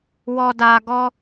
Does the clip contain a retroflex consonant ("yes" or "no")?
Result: no